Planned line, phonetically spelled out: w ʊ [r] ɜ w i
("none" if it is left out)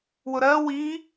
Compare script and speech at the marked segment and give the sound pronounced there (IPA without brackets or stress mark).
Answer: ɾ